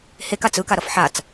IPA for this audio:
h e k a t͡s ɯ k a ɾ ʌ f ħ a t͡s

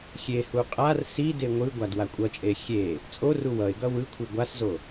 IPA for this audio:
xʲ e h u qʼ a r s i d e ŋʷ ɯ ɡʷ a d w a kʷʼ ʌ t͡ʃʼ e xʲ e | t͡sʼ o r u w ʌ ɪ̯ ɡ ʌ w ɯ kʷʰ i ɡʷ a s z o

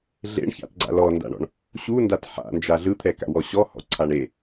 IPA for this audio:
ɮ ḛ ɳ ç a̰ t ɡ͡ǀ a̰ l ɔ n d a̰ ɳ ɔ̰ ɳ | ɕ u n d a t ħ a̰ n d͡ʒ a ɮ ɯ t̪ʰ ɛ k a̰ w ɔ ɕ ɔ h ɔ̰ ǀʰ a ɳ e

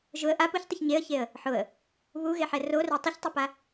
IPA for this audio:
ʒ ʊ ə̯ ʔ a p u ç tˤ ɪ ç ɲ e ə̯ ç e ə̯ | ħ ʊ ə̯ | β u ɣ e ħ ɛ r o r ɛ tˤ ɪ ç tˤ ʊ p a

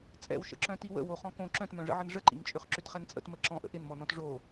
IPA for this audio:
t͡sʼ ɛ̰ w ʃ ə̰ ǁ œ̃ t i w ə̰ w o χ ɔ̃ k õ ǁ œ̃ t m œ̃ ʐ ə̰ ʕ ə n ʐ ə ǃ ḭ ŋ t͡ʃʼ ʏ χ ǁ ʏ t χ ɛ n t͡sʼ ə̰ t m ə ǁ ɔ̃ ʔ ə̰ ʔ ɪ n m ɔ n ɔ̃ t ʐ o

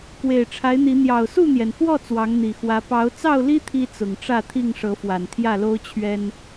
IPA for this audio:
k w e˨˩ ɪ̯ ʈ͡ʂʰ a˨˦ ɪ̯ n̪ i˨˦ n̪ j ɑ˨˩ ʊ̯ s u˥˨ n̪ j ɛ˩ n x w ɔ˥˨ t͡s w ɑ˨˦ ŋ n̪ i˨˩ x w ä˨˦ p ɑ˨˦ ʊ̯ t͡s ɑ˥˨ ʊ̯ l i˦ t̪ʰ i˦ t͡s ʊ˨˩ ŋ ʈ͡ʂ ä˥˨ t̪ʰ i˥˨ ŋ ʂ ɤ˨˦ f w a˨˩ n t̪ʰ j ä˥˨ l o˦ ʊ̯ t͡ɕʰ ɥ ɛ˦ n

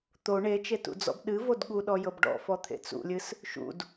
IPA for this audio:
t̪ o ɳ e t͡ʃ e t ṵ d͡z ɔ̰ b ɗ ɨ v o d ɠ u ɗ ɔ j ɤ b ɖ ɔ̰ f ɔ t̪ʰ ḛ t͡s ṵ lʲ ɨ s | ʃ ṵ d

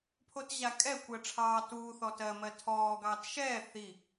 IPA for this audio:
pʰ o t ʑ a kʼ ɛ kʷ ɜ ʈ͡ʂʰ ɑː t uː θ ɔ t ɜ m ɜ tʰ ɔː ɡ ɑː t ʃ ɛː θ i

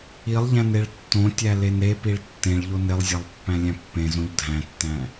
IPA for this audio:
i lˠ ʎ æ̃ n e ɭ tː õ tʲ æ l e n ɾ e p i ɭ tː ẽ ɭ ʎ o n e lˠ zʲ æ lˠ pː æ̃ lʲ æ̃ pː ẽ z õ ʎ dʱ æ̃ tː æ̃

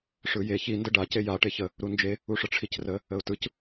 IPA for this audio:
ʂ ɯ j e ç i n d ə ɖ a c e j a ʈ e ç ə | ɾ u n d͡ʒ e | u ʂ ə ʈ͡ʂʰ i c r ə | ə ʊ̯ t ɯ c

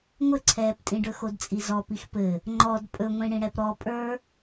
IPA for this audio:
ŋʷ ɘ ǀʰ ɛː p tʼ ĩ ɖ ɵ x o d t͡sʼ i z ɔ p i x p ɘ | ŋ͡ǃ ɔ d pʼ ɵ ŋʷ ĩ ɽ ĩ ɽ ɛ p ɾ ɔ pʼ ə˞

